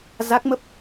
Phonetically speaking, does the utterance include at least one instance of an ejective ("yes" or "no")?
no